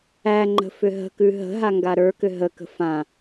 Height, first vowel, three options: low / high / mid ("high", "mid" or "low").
low